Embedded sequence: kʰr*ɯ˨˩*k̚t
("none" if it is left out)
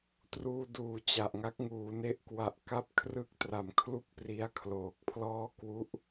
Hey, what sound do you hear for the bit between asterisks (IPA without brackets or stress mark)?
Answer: ɯ˦˥